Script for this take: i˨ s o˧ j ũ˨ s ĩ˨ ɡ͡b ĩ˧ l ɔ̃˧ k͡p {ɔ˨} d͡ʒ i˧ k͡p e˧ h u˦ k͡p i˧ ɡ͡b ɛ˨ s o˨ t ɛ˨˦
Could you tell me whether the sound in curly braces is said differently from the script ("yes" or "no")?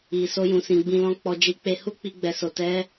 yes